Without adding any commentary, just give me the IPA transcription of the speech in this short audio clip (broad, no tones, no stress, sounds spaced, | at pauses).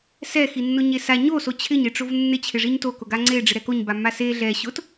s ɛ x i nː ʊ ɲ e s a ɲ o s o t͡ɕʰ ɪ ɲ e ʈ͡ʂ o v nː ɪ t͡ɕʰ ɪ ʐ i ɲ t o k ʊ ɡ a ŋ͡ǀ e ɖ͡ʐ ɪ ɾ ɛ k o ɲ b a mː a s e ɮ ɛ ɕ ʊ t